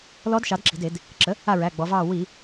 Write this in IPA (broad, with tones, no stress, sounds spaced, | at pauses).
l ɔ˧˥ d ʃ ɑ˩˥ d ǁ i̤˩˧ d e˧˩˧ d | ǁ ə˩˥ | a˦˨ ɹ æ˩˧˩ ɡ͡b ɔ˩˧ v ɑː˦˨ w i˧˩˧